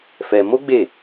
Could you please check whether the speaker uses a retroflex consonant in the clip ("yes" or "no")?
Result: no